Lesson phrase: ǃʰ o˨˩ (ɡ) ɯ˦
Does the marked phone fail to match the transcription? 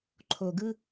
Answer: no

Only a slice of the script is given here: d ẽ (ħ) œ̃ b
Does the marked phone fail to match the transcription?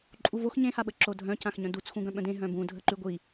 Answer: yes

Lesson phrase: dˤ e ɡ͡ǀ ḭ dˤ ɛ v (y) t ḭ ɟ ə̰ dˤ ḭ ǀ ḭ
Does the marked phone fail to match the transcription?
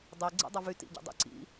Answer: no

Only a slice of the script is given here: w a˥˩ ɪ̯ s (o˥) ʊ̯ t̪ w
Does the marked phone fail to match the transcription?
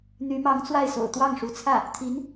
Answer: yes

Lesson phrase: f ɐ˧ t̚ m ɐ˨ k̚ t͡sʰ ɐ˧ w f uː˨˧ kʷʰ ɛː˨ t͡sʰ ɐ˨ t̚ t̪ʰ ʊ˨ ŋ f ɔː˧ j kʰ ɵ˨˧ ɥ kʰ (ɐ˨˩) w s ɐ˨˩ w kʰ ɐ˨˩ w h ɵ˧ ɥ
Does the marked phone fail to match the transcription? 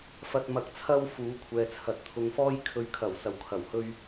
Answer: no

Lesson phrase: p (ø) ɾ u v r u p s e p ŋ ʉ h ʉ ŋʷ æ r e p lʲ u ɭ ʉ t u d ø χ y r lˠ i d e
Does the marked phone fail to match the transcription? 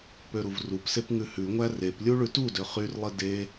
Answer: no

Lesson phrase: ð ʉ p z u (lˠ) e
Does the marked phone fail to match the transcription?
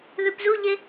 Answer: yes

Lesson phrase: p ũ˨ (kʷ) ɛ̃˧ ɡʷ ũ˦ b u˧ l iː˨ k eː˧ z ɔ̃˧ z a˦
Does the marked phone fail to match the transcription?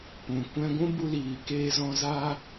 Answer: no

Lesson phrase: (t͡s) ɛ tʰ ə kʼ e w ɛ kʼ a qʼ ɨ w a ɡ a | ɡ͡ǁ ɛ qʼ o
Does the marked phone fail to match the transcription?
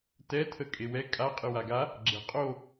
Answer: yes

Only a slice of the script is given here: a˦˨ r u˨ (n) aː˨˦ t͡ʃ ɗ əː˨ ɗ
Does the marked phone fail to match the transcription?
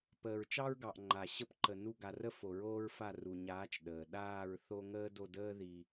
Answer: yes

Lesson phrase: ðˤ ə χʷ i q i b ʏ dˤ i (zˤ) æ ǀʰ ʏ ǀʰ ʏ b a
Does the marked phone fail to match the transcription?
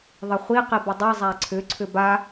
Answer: no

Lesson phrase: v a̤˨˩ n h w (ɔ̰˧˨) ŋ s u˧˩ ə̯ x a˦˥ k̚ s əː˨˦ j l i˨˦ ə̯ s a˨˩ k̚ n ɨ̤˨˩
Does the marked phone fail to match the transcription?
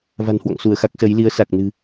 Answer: no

